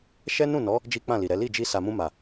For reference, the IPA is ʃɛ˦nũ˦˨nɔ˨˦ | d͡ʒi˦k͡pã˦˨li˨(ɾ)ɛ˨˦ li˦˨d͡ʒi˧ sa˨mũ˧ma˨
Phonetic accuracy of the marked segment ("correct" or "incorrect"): correct